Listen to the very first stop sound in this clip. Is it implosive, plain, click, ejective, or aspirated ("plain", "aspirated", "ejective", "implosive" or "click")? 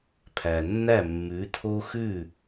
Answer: aspirated